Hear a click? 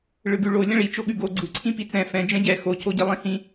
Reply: yes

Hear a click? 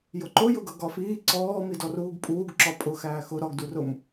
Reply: yes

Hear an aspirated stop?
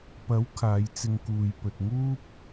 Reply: yes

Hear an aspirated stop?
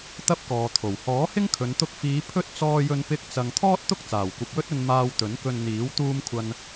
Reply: yes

